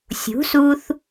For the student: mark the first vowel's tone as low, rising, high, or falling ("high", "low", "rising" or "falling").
rising